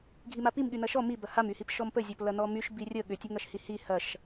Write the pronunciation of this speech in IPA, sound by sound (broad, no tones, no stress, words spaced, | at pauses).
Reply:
ɡʱimapim ɠynɐʃɔ mibɐ hamyhip ʃɔmpəzʲɔp lɐnɔmyʃ birʲə ɠʏtʲɐŋɐʃhi hi hɐʃ